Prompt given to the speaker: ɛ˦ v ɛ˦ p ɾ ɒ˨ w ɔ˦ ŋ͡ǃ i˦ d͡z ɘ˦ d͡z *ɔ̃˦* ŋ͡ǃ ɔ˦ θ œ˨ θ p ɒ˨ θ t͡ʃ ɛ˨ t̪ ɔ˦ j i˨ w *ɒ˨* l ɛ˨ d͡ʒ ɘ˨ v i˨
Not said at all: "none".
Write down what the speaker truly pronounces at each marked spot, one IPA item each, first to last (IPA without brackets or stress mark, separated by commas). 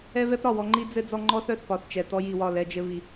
ɔ˦, ɒ˦˨